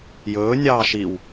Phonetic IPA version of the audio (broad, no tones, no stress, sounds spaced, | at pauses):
j ɵː nʲ ɑː ʃ i w